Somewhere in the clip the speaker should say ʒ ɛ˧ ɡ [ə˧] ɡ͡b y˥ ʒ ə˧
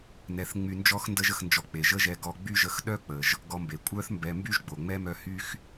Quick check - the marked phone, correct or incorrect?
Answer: incorrect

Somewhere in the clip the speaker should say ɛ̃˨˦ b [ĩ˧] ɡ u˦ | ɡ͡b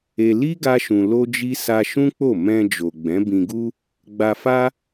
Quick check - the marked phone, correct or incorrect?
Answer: correct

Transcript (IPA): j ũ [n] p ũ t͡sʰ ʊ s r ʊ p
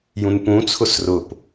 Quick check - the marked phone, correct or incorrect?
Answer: correct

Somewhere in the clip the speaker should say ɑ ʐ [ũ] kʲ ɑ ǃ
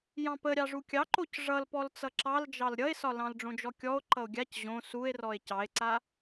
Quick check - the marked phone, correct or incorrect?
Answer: incorrect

